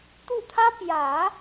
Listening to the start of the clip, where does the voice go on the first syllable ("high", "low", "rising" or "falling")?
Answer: falling